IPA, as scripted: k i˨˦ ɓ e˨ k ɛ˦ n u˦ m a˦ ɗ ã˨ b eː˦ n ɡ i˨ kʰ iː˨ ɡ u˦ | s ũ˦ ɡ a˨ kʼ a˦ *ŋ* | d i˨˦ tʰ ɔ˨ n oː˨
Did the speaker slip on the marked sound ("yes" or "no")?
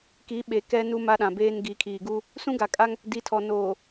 no